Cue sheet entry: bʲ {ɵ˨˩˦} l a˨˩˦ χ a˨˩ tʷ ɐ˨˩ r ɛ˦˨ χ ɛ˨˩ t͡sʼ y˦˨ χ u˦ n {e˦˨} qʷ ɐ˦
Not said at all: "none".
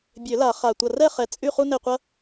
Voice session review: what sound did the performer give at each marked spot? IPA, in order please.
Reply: ø˨˩˦, e˦˨

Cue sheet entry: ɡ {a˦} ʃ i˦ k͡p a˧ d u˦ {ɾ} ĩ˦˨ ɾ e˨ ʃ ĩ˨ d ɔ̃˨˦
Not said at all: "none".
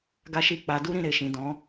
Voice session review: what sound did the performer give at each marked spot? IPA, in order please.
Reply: a˦, ɾ

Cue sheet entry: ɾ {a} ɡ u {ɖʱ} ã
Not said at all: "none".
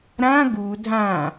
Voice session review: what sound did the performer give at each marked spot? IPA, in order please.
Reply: ã, dʱ

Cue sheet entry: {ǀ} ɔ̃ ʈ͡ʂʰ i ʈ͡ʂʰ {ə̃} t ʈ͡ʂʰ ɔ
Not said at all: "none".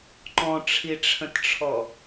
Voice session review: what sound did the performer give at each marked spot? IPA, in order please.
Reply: ǃ, ə̃

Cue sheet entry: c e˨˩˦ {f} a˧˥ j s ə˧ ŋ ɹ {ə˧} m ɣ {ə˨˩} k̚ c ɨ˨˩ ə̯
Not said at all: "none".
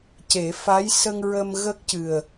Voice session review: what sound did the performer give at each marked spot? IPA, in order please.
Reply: f, ə˧, ə˦˥

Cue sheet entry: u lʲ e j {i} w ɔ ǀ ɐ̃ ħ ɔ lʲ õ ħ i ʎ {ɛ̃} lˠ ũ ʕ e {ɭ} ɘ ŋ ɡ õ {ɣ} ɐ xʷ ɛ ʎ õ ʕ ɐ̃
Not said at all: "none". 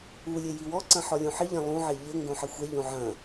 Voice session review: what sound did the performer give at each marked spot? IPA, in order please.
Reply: i, ɛ̃, ʎ, ħ

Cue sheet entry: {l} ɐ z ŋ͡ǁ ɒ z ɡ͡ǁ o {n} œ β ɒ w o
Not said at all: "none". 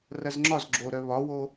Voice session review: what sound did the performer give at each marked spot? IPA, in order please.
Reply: r, ɾ

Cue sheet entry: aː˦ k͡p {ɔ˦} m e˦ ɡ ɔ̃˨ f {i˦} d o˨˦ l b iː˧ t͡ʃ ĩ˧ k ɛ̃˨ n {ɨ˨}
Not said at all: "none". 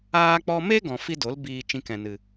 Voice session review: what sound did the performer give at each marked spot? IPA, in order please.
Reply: ɔ˦, i˦, ɨ˨

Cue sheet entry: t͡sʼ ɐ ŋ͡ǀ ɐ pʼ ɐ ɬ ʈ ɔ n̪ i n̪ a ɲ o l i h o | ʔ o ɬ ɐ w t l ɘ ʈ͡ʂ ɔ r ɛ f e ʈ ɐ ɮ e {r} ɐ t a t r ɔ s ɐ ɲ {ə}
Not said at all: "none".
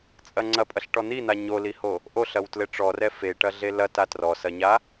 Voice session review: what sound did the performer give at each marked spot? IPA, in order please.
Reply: l, a

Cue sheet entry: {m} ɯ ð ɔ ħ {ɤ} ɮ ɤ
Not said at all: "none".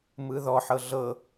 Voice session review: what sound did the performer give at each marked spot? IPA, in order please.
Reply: m, ɤ

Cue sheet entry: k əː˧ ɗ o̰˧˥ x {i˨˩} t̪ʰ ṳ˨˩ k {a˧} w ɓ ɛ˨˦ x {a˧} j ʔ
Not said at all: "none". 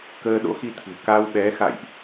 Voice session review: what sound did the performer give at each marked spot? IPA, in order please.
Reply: i˧, a˧, a̰˧˨

